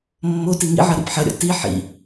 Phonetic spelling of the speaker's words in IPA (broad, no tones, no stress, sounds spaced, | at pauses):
mː o t i ŋ ḭ ʕ ɐ ɾ ḭ p ħ ɐ ɾʲ ɔ̰ t i ħ ḭ